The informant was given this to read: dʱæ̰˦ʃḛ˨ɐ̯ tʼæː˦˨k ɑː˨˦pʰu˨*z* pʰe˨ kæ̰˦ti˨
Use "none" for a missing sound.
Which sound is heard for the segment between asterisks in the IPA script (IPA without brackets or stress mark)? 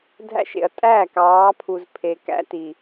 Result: z